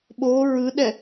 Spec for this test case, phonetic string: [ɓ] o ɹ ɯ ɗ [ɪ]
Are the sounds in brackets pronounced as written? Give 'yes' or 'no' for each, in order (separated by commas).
yes, no